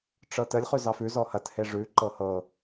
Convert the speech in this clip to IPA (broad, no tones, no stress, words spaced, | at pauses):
ʈ͡ʂɤtəlʲ χʉzɑfʉ zɔhɐt heʐʉ ǃɤhɤ